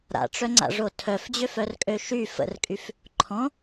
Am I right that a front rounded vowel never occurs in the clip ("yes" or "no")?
no